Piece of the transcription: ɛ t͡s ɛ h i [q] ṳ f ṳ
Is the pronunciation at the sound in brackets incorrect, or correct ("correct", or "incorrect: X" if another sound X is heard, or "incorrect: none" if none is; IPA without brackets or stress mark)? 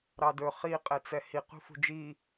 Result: correct